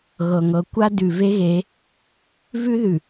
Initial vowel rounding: unrounded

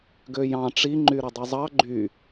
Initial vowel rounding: rounded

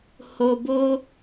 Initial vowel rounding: rounded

